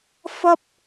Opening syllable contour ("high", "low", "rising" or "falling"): high